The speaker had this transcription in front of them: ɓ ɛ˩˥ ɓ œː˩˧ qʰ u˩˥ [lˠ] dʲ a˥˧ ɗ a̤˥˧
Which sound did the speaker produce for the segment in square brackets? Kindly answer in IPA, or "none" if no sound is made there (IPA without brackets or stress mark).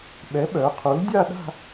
l